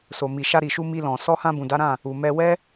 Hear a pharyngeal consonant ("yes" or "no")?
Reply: no